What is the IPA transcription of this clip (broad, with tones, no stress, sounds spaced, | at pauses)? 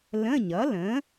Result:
l ə̃˧˥˧ ɲ ʌ˩˥ l ə̃˩˥